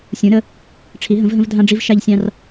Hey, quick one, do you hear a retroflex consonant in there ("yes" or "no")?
yes